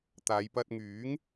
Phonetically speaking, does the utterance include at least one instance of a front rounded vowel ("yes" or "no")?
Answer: yes